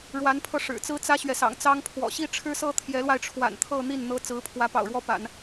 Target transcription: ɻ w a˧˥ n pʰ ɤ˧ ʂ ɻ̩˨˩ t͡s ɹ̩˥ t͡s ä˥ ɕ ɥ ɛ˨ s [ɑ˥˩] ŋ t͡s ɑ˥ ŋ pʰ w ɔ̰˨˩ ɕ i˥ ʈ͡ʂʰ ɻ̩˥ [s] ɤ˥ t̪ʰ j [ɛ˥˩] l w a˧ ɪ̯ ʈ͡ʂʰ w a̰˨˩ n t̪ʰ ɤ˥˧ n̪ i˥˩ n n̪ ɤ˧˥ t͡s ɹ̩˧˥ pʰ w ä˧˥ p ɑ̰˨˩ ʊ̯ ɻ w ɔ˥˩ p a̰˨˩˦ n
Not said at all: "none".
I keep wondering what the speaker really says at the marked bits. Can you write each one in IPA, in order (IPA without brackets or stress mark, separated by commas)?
ɑ̰˨˩, s, ɛ˧˥